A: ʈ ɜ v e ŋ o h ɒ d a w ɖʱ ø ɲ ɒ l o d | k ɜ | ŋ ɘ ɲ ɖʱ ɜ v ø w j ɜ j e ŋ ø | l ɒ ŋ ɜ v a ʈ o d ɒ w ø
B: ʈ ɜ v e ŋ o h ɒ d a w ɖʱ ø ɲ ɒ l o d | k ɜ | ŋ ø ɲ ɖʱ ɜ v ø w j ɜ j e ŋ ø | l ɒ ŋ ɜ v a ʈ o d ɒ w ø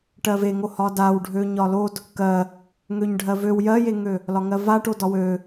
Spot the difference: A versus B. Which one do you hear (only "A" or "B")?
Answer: B